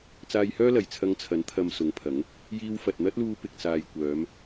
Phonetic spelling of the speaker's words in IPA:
t͡saː˧jhœː˥lɐ˨˩j t͡sʰɐ˧ŋt͡sʰɐ˨˥n t̪ʰɐ˧msʊ˨˥ŋpʰɐ˨˥ŋ | jiː˧wfɐ˨t̚n̪ɐ˥t̚luː˧ pɪ˨k̚t͡saː˨jkʷœː˨˧m

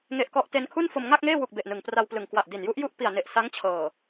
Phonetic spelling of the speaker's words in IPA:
ŋe˨˩ʔkɔ˨˩ʔ te˧nkʰu˥˩nfo˧m ŋa˥˩k̚ŋeː˥˩wu˨˩k̚ be˨˩ʔnɯ˨˩ŋpra˧wplɯ˨˩ŋ kwa˨˩ʔdi˨˩nju˦˥ʔju˥˩ʔ pi˨˩a̯ne˨˩ʔ sa˦˥ŋt͡ɕʰɤː˨˩

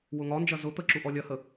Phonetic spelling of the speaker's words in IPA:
wʊŋɒnd͡ʒɐ zʊ t̪əǁu ʔɔlʲɐhə

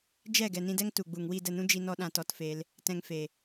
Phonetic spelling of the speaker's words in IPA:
d͡ʒɛ˦˨ ɡɛ˨nĩ˧dɛ˦ŋ tu˨ɡ͡bu˨ŋ wi˦˨də˦˨nũ˦ d͡ʒi˧nɔ˧ ɗã˧tɔ˧tfe˧l | tɛ̃˧ŋfe˨

